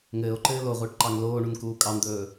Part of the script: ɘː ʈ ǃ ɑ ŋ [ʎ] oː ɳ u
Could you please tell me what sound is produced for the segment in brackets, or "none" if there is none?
l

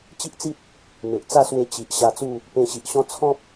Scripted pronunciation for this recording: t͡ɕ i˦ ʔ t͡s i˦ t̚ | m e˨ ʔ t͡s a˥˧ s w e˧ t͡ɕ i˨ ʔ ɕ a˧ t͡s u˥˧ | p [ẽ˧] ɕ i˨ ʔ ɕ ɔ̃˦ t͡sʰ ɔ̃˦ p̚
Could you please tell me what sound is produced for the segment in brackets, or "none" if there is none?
ẽ˧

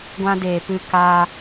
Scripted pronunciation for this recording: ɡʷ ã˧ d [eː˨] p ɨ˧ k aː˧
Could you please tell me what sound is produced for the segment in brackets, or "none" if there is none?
eː˨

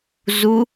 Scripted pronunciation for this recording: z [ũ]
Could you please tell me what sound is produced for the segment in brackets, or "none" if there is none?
u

